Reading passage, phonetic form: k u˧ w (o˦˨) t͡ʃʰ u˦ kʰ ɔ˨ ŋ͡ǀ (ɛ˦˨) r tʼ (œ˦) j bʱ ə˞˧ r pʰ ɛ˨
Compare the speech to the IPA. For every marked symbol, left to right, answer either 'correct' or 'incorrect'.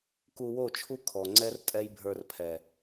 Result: correct, incorrect: ɛ˦, incorrect: ɛ˦

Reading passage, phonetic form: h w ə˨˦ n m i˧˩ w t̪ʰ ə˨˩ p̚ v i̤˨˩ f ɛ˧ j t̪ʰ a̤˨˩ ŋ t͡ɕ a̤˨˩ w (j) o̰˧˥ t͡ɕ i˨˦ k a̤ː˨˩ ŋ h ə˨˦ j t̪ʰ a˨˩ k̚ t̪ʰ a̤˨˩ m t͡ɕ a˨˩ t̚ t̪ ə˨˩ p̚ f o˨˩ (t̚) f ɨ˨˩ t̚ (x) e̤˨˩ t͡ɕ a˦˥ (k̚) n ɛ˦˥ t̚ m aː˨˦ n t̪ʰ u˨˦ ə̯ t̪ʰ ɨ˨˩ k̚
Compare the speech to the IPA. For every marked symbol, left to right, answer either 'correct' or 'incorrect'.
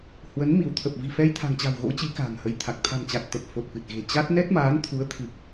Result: incorrect: ɣ, correct, incorrect: ɣ, incorrect: t̚

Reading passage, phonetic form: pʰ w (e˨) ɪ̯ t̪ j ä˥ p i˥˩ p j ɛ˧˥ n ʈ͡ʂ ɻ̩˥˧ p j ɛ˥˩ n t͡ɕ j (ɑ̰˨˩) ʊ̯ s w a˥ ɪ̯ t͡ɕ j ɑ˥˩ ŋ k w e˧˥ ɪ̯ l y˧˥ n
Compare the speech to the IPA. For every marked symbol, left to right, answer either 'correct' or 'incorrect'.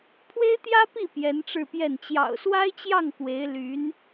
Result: incorrect: e˥, correct

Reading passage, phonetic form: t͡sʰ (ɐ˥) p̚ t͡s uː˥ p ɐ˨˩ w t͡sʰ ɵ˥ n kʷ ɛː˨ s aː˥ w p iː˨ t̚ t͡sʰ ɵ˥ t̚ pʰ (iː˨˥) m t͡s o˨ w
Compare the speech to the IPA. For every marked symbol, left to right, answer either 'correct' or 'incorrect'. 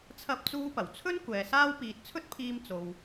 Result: correct, incorrect: iː˧

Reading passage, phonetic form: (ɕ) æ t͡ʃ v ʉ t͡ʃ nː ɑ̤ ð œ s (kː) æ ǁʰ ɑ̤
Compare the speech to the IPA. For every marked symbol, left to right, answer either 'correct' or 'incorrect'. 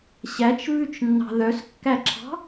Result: correct, correct

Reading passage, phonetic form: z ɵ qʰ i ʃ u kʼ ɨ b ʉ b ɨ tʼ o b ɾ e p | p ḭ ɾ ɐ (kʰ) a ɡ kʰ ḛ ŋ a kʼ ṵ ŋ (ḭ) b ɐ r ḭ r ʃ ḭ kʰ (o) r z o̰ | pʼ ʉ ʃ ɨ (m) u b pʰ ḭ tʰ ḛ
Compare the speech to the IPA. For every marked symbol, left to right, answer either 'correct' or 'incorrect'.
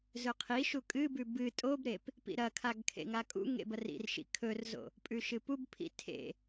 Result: correct, incorrect: ḛ, incorrect: ɵ, incorrect: p

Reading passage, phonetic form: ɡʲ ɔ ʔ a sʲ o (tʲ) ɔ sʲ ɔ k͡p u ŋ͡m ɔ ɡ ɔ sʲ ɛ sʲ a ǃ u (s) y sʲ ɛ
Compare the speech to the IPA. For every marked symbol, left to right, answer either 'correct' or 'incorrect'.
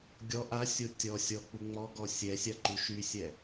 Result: correct, incorrect: ʃ

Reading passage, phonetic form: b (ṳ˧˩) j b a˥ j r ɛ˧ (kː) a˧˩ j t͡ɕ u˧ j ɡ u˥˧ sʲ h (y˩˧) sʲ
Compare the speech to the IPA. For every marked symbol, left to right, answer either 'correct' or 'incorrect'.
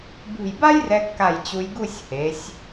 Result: correct, correct, incorrect: e˩˧

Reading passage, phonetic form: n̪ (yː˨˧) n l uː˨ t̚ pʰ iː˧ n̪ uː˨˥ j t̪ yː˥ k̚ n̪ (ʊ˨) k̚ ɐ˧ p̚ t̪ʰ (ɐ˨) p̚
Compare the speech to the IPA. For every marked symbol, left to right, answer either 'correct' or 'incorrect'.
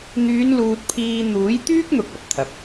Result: correct, correct, correct

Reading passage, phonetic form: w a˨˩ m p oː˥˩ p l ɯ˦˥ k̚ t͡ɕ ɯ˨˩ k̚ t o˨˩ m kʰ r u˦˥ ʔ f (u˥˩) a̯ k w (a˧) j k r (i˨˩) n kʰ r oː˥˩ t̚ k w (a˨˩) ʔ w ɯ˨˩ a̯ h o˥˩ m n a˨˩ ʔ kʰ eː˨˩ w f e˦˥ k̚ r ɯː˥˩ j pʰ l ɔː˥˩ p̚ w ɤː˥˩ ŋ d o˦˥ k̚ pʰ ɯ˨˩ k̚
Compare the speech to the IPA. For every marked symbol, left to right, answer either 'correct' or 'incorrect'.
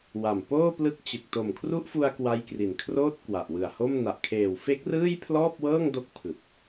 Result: incorrect: u˧, incorrect: a˦˥, correct, correct

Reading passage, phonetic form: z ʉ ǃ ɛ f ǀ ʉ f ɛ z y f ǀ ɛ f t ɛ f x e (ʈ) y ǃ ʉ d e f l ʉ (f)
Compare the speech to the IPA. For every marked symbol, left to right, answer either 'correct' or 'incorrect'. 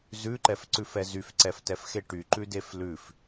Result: correct, correct

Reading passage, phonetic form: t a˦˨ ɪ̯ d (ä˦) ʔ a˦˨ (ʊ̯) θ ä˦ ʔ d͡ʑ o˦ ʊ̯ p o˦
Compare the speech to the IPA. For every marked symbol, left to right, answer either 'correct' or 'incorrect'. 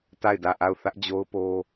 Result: incorrect: ä˦˨, correct

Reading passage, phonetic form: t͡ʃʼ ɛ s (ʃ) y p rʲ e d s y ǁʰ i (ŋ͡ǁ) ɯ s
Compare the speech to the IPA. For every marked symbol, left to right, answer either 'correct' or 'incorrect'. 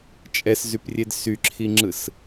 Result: incorrect: z, correct

